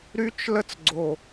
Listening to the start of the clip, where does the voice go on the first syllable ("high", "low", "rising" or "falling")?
high